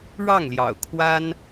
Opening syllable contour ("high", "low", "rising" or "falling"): falling